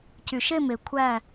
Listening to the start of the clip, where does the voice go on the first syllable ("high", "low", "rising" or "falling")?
low